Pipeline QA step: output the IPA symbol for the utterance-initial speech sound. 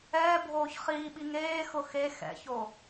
ɛː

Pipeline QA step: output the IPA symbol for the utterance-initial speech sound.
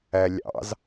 æ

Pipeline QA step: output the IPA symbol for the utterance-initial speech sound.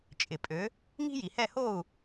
t͡ʃʼ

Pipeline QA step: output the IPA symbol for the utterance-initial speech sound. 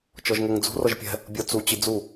t͡ʃ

